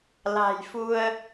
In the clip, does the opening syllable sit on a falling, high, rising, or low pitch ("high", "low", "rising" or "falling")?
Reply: low